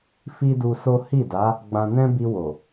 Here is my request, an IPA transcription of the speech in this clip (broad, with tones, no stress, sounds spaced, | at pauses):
f i˦ d u˧ s o˦ h i˦˨ d a˨˦ | ɡ͡b ã˧ n ɛ̃˦ b i˧ w o˨